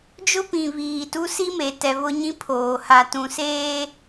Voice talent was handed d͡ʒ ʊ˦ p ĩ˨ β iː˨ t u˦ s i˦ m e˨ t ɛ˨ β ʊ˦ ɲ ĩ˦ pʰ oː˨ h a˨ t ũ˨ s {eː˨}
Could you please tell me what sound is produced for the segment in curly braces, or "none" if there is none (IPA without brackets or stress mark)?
eː˦